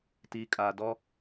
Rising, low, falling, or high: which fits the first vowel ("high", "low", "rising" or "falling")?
low